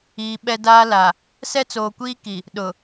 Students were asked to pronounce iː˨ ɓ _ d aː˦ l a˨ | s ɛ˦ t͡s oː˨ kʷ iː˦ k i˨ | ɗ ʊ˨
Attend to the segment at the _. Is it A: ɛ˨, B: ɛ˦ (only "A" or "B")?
B